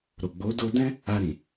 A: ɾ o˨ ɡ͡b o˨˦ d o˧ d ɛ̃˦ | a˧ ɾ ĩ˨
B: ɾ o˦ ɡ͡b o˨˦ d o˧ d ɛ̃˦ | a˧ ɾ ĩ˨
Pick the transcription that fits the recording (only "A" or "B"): A